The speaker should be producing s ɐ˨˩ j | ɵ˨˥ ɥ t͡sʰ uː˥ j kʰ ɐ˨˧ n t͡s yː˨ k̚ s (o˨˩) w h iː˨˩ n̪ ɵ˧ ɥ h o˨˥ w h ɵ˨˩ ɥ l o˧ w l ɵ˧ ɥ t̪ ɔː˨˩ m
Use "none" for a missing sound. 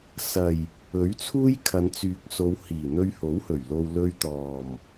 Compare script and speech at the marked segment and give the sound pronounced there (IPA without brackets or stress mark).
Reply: o˨˧